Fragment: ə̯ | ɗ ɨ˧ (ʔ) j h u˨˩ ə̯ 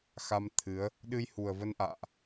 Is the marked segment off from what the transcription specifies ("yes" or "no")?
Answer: yes